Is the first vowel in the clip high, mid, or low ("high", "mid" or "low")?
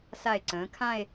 low